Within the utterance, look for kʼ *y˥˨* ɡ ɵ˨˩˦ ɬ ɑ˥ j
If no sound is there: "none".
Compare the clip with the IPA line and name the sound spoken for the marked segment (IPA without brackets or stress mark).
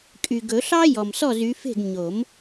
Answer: y˨